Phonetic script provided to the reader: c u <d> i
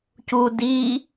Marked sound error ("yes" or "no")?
no